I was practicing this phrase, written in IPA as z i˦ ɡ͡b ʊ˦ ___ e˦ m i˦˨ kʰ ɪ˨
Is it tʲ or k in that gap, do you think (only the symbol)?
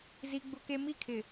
k